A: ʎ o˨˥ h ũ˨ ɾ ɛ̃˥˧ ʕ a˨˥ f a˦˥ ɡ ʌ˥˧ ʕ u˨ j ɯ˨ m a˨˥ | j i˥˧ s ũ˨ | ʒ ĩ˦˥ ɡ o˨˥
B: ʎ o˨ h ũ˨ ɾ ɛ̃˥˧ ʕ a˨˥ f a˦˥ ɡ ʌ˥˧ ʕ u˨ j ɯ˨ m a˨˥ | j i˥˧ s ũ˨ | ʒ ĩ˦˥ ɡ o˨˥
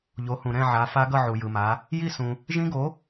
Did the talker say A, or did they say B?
A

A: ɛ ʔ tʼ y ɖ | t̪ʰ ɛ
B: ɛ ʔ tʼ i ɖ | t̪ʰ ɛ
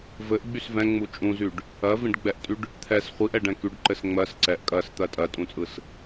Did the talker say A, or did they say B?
A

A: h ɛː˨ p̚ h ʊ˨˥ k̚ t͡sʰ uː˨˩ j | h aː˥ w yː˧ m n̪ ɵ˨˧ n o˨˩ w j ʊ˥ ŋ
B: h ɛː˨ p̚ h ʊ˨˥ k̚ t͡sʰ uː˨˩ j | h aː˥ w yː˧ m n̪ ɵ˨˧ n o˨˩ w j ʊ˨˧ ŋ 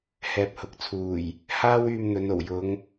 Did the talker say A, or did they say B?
B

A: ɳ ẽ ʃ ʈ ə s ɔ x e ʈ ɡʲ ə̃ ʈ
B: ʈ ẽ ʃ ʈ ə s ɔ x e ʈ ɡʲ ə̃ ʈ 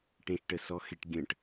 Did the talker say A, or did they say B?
B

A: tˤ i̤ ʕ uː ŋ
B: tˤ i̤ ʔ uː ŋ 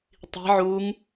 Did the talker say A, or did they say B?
A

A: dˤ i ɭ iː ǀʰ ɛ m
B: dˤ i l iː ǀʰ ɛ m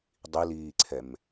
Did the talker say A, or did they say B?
B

